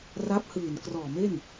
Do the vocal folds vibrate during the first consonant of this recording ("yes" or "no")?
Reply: yes